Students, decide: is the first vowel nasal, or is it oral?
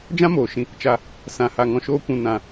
nasal